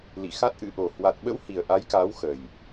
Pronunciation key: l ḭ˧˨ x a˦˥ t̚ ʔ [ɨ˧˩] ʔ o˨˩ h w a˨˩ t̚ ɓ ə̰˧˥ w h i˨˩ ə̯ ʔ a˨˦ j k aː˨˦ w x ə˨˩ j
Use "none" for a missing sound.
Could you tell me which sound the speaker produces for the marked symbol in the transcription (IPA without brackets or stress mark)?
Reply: ɨ̰˧˥